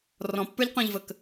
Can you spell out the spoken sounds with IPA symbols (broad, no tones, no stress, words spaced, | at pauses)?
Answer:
rɔ̃pːə˞ʎqɔ̃ʎvək